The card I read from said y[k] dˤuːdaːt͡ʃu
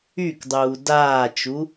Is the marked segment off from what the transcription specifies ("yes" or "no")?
no